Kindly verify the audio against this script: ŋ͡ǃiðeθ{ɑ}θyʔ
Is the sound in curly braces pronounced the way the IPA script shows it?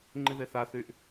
no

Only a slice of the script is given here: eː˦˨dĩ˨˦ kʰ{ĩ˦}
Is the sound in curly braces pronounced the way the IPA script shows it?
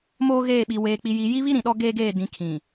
no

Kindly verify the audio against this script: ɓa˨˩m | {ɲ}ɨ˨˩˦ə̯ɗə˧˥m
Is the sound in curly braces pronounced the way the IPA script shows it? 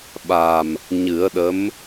yes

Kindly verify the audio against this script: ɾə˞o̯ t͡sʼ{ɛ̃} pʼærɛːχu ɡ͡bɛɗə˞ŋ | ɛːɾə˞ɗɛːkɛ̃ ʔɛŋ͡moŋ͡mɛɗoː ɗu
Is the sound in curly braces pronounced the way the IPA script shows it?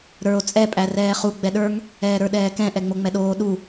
no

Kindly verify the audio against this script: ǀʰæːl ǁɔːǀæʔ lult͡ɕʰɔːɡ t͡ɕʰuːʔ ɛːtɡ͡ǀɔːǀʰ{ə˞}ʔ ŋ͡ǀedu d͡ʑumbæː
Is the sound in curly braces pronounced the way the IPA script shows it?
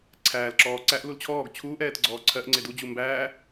no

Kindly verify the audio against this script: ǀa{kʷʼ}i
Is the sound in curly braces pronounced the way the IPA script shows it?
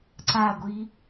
no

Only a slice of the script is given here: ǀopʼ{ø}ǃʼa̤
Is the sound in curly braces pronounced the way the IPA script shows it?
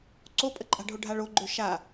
no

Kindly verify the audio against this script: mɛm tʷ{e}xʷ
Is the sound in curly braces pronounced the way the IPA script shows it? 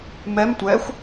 no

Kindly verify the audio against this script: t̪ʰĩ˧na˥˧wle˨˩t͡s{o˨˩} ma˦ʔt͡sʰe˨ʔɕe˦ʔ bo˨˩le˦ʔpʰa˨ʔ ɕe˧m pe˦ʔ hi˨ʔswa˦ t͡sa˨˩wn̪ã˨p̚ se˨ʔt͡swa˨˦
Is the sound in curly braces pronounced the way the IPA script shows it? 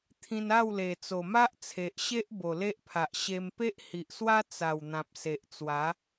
yes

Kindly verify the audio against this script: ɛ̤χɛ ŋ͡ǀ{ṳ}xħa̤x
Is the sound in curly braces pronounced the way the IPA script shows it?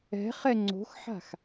no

